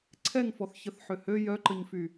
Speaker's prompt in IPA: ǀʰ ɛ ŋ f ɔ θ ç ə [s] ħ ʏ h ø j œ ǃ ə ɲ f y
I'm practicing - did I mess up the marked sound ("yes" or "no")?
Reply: yes